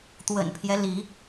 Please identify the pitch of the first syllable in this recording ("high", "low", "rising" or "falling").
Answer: low